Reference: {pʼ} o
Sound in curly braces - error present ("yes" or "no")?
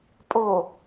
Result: no